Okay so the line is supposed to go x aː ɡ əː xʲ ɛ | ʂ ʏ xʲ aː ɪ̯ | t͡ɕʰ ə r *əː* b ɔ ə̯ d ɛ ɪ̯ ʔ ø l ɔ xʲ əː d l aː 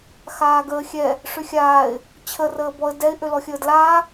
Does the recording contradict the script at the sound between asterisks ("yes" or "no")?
no